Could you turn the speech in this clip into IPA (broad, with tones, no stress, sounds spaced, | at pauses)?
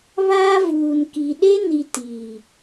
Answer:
β aː˦ v uː˨ n k i˨ ɗ e˦ n i˨ t iː˨